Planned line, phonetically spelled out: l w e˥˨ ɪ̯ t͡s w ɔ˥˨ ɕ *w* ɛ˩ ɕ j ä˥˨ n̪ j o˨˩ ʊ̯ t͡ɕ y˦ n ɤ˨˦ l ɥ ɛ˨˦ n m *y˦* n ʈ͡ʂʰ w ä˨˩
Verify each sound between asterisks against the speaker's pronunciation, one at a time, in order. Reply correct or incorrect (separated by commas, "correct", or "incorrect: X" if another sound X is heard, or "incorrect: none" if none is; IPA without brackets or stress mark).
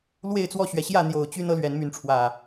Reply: incorrect: ɥ, incorrect: y˨˦